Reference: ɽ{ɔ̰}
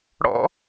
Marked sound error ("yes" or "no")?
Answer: no